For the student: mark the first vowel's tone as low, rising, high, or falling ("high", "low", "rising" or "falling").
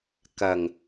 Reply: low